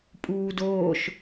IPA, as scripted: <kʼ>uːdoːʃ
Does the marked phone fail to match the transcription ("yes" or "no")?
yes